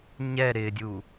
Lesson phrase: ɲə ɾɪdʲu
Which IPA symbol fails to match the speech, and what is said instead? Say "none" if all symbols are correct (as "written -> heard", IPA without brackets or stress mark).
ə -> ɛ